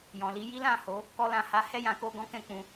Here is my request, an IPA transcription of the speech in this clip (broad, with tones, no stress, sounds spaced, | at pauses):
j ɔ̃˨ l i˨˦ j i˦ l ã˦˨ h o˨˦ | k ɔ˧ l ã˨ h a˨˦ h ɛ˦˨ j ã˨˦ k o˧ ɡ ɔ̃˦ k ɛ̃˦˨ k͡p ũ˧